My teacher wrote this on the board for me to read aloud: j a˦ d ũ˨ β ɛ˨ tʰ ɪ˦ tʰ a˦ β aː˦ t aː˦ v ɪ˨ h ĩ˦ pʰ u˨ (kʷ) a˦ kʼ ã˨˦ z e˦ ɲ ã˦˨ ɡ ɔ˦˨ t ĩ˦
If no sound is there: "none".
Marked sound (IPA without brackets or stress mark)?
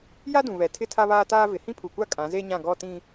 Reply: kʷ